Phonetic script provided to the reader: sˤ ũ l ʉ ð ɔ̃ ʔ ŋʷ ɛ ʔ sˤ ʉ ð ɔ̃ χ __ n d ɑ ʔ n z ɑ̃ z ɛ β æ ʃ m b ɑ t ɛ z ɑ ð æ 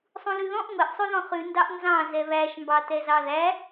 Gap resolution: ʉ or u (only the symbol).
ʉ